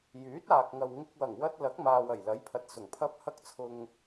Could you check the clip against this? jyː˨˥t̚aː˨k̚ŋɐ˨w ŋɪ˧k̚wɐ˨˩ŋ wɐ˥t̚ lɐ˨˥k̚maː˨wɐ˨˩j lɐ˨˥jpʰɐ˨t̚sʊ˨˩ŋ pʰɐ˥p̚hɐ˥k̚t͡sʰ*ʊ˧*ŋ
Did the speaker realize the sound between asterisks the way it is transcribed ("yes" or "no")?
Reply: yes